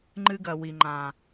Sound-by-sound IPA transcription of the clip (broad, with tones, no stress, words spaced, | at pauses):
ŋ͡ǃɨ˦ɡɐ˨ wi˨ŋ͡ǃã˨